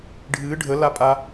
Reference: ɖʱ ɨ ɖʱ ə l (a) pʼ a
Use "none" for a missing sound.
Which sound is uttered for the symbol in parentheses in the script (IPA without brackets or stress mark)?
a